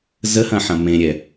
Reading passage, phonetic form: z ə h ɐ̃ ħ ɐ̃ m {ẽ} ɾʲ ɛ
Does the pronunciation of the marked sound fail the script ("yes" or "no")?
no